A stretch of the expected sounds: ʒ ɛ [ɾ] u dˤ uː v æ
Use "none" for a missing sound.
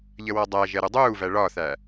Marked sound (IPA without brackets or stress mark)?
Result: ɾ